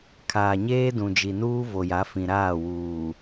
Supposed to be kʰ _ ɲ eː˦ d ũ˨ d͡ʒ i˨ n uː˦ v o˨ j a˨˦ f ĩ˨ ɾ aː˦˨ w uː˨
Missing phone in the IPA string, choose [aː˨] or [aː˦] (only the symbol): aː˨